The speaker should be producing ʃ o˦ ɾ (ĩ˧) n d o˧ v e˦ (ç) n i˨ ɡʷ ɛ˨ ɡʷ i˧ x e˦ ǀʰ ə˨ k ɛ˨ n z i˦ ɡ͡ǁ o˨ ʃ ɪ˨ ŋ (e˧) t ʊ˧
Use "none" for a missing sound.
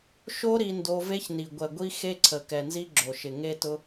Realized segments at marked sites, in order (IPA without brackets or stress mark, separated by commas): i˧, ç, e˧